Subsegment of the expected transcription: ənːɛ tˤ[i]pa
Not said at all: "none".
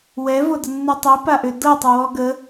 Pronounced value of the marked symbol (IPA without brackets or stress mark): i